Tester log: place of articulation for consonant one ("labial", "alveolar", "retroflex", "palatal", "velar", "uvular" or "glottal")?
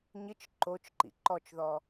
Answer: palatal